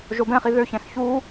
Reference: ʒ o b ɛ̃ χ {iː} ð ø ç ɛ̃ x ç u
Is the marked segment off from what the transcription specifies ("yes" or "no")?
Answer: yes